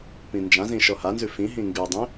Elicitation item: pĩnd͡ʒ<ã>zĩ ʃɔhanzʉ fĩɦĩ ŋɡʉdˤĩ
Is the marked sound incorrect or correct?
correct